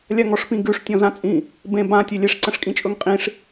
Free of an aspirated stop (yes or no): yes